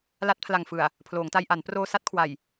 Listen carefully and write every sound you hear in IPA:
l a˦˥ t̚ pʰ l a˨˩ ŋ f ɯ˨˩ a̯ | pʰ l oː˩˦ ŋ t a˧ j ʔ a˩˦ n p r oː˧ s a˦˥ t̚ kʰ w a˨˩ j

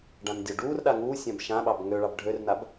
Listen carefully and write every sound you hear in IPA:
ɖ ã n dʲ ɔ ɖ uː r ɗ a ŋ uː sʲ ã b ʃ ã ɓ ɑ b ŋ ø ɭ ɑ b ɖʱ ø r n a b

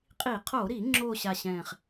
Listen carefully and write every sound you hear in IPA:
qʼ i˧˩˧ qʰ oː˧˩˧ ɾ iː˧˩˧ ŋ͡ǁ oː˨˩ ɕ a˨˩ ɕ ɛ̃ː˨˩ χ

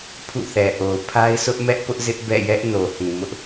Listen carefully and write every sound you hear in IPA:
pʰ ṵ˦˨ θ ɛ˨ ʔ o˨ ʊ̯ pʰ a˦ ɪ̯ sʰ ʊ˦ ʔ m ɛ˦ ʔ p ʊ˦ ʔ z ɪ˦ ʔ b ɛ̰˦˨ j ɛ˦ ʔ n o˨ h ĩ˨ m ʊ˦ ʔ

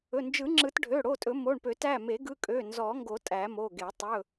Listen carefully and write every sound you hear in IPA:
ɵ˩˧˩ n d͡ʒ ɯ˨˩˦ ŋ͡ǁ ɯ˨˩˦ t ɖʱ ø˩˧˩ ɽ o˩˧˩ tʼ ɵ˨˩˦ m o˩˧˩ ɳ p ø˨˩˦ t æ˩˧˩ m e˨˩˦ ɡ ɯ˩˧˩ kʼ ø˩˧˩ n z ɔ˨˩˦ ŋ ɡ o˨˩˦ tʼ æ˨˩˦ m o˩˧˩ ɡ e˨˩˦ tˤ ɵ˩˧˩

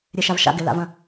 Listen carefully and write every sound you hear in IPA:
ɾʲ e ʃ a v ʃ a̰ ɡ ɪ l a̰ v ɐ̃

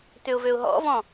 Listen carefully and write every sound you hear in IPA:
t ʏ ʊ̯ v ø ʊ̯ ɦ ɔ̰ v ɔ̃

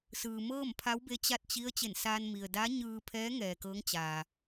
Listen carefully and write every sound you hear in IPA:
s ɯː˩ m ɤː˥˨ m pʰ a˧˥ w b e˧ t͡ɕ a˥˨ t̚ t͡ɕ i˧˥ ə̯ t͡ɕ e˧˩ n s aː˧ n m i˩ ə̯ d a˧˥ ɲ ɯː˧ pʰ ɛː˧˥ ŋ ɛː˩ k ɤː˧˥ ŋ t͡ɕ aː˩

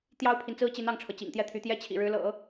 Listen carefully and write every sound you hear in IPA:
t̪ j ɑ˥ ʊ̯ pʰ i˨ n t͡s ɹ̩˥ t͡ɕ i˧˥ n ɑ˥˩ ŋ ʈ͡ʂʰ ɤ˩ t͡ɕ ḭ˨˩ ŋ t̪ j ɛ˥˩ t̪ʰ y˧˥ t̪ j ɛ˥ t͡ɕʰ ḭ˨˩ ɻ ɻ̩˧˥ l ɤ̰˨˩˦

